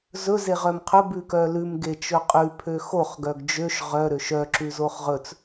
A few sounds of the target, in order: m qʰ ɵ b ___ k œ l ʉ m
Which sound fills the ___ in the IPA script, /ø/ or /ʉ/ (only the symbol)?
ʉ